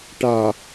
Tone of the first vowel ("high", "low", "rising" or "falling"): low